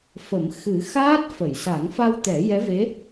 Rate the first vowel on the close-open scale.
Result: mid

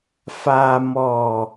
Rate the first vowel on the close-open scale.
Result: open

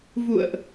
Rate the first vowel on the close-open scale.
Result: close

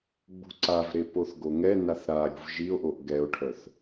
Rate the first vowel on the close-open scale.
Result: close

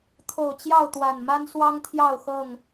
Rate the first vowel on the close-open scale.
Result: mid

